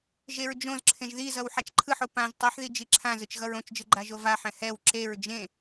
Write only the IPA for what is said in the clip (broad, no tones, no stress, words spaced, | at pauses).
ʒeɹd͡ʒõzǁʰẽʒ ðizʌw ħat͡ʃǃʰɯħo pãʒ tˤiħði d͡ʒiǁʰãzɯt͡ʃ ɣʌɹõt͡ʃd͡ʒɯ ɡ͡ǃaʒovaħɛ̃ hɛw ǁeɹ d͡ʒẽ